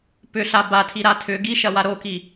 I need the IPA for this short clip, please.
p ʏ ɬ a b a tʰ i ɾ a tʰ ʏ ɡ i ʃ ɐ w a ɾ o k i

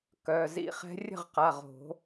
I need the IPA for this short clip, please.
k œ˩˧˩ z ḭ˦ χ ɛ̤˦ rʲ ə̤˥˩ ʁ q a˩˧˩ ʁ o̤˨˩˦

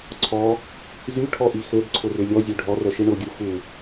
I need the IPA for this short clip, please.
ǀʰ ɔ | z y ʈʰ ɔ ʔ i x ø b ǀʰ ʊ r ʏ lʲ ɔ zʲ ø ɖʱ ɔ r œ ʃ i ɳ ʊ ɡʲ u x u

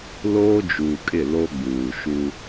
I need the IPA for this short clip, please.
l oː˦ d͡ʒ uː˨ kʼ ɪ˦˨ l o˦ ɡ͡b uː˨ ʃ u˦

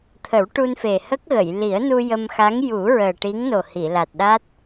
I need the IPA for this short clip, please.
t̪ʰ ə˨˩˦ w ʈ u˧ n f e˨˩ h ə˦˥ k̚ ɣ ə˨˩˨ j l i˨˩˦ ə̯ n u˧ j ə˧ m x a˧˥ ŋ j u˨˩˦ ɹ əː˨˩ ʈ i˧˥ ŋ n o˨˩ h i˨˩˨ l a˨˩ t̚ ɗ a˦˥ t̚

